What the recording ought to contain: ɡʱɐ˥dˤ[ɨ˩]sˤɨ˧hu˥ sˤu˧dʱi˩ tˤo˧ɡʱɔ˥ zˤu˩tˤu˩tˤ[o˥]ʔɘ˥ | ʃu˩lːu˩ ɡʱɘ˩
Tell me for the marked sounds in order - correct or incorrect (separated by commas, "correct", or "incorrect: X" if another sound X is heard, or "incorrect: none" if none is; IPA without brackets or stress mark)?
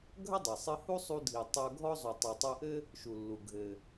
incorrect: ɛ˩, incorrect: o˧